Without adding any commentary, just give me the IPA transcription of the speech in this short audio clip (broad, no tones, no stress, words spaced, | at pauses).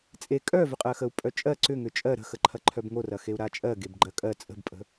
t͡sʼe kʼœvʏqʼɜxəu̯ pʼœt͡ʃʼɜ ǀʏ ŋʏt͡ʃʼɜ ɾə̤xəǃʰɐǃʰœb ŋorɐxeu̯ ɾat͡ʃʼɜ ɡebɡ͡ǃɜkʼɜ t͡sʼə̤bpʼə̤